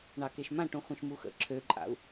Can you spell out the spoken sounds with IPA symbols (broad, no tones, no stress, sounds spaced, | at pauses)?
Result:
ɳ ɑ k e ʃ m ã ʈ ũ χʷ ẽ ʃ m u x ə̰ ǁʰ ø ǃʼ a̰ u̯